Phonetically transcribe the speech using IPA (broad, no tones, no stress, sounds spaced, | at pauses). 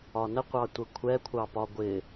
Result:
ɒ n ə qʷ ɑ tʷ ə kʷʰ ɛ kʷʰ ɑ p ɒ ɡʷ ɪ